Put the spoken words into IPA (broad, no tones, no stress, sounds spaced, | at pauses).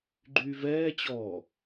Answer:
ɡ͡ǃ yː v ɛː t͡ɕ ɔː